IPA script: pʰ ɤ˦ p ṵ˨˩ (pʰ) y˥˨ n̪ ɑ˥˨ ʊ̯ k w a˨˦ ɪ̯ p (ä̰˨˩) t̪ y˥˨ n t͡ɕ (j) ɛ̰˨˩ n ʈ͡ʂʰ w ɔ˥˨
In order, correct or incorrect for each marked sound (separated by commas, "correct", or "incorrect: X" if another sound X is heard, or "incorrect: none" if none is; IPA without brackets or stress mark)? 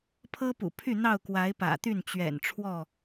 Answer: correct, correct, incorrect: ɥ